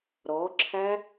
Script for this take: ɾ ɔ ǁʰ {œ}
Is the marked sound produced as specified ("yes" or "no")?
no